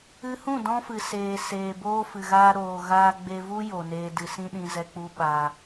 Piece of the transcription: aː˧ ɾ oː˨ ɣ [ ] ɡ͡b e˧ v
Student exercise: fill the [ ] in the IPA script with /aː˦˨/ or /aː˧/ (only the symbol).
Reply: aː˧